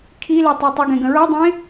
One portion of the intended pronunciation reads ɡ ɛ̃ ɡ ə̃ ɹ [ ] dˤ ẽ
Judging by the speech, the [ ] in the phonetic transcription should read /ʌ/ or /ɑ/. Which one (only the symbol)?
ʌ